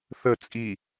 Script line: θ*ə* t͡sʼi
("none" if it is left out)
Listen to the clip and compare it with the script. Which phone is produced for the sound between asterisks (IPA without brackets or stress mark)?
ə